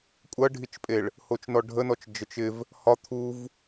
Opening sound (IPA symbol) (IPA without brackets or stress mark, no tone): kʷʼ